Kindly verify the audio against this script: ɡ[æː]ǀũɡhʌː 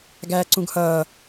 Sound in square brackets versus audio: correct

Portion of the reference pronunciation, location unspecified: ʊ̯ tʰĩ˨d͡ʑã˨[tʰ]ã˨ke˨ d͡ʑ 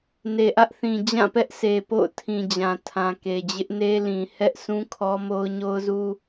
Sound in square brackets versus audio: correct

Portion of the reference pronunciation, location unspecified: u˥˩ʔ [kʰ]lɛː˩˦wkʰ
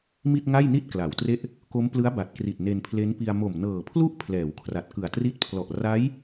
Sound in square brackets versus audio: incorrect: pʰ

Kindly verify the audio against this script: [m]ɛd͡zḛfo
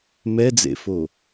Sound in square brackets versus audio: correct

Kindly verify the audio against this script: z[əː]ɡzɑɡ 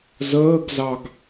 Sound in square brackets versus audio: correct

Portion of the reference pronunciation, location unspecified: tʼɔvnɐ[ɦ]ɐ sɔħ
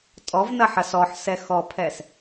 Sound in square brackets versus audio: incorrect: ħ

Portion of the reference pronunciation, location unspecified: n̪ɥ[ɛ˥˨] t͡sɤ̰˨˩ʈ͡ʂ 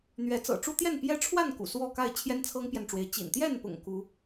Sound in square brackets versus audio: incorrect: ɛ˨˦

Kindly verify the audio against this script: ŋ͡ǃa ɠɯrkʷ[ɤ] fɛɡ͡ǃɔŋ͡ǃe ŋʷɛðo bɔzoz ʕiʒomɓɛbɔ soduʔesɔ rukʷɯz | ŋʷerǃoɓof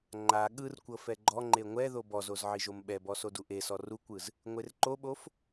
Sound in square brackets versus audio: correct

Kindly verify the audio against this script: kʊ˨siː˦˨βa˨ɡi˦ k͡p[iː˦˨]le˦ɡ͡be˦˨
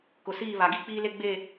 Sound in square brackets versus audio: incorrect: iː˦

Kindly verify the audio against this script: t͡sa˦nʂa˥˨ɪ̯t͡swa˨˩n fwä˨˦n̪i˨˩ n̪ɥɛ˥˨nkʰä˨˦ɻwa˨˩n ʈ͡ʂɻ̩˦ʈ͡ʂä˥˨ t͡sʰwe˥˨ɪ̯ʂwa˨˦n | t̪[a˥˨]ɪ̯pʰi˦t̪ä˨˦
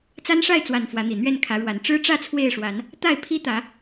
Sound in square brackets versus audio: correct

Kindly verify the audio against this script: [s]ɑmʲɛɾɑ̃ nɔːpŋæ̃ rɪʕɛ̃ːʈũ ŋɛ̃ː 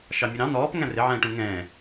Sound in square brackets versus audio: incorrect: ʃ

